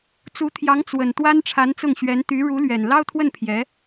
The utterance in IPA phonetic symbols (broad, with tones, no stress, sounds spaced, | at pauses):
t͡s u˧˥ t̪ʰ j ɑ˧˥ ŋ t͡s w ə˨˩ n t̪ w a˥ n ʈ͡ʂʰ a˧˥ n t͡s ʊ˥˩ ŋ ɕ ɥ ɛ˧˥ n t̪ y˧˥ ɻ u˧˥ l ɥ ɛ˨˩ n l ɑ˥ ʊ̯ t̪ʰ w ə˥˩ n pʰ j ɛ˧˥